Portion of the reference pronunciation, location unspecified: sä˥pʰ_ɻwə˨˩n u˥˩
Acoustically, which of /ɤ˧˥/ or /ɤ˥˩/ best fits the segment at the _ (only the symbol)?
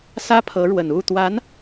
ɤ˧˥